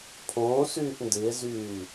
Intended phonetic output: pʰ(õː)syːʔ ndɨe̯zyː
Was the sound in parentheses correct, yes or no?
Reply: yes